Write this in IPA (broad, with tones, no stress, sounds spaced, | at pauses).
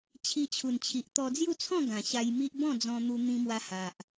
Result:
t͡ɕʰ i˧ t͡ɕʰ u˨˩ n t͡ɕʰ i˨ ʔ t̪ ɔ˧ d͡z j u˥˧ t͡sʰ ɔ̃˥˧ ɡ ã˨˩ ɕ a˧ j m i˦ ʔ b ɔ̃˥˧ d͡z ɔ̃˧ n̪ u˧ n̪ ĩ˧ m w a˧ h a˨ ʔ